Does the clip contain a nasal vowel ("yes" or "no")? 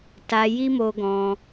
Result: yes